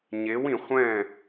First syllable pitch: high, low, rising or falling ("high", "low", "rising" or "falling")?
rising